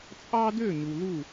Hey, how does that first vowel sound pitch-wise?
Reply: high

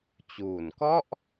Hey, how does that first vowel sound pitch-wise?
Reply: low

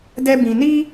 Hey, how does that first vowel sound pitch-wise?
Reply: high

